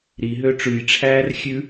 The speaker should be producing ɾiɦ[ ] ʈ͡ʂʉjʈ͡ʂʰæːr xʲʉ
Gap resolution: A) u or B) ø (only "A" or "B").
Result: B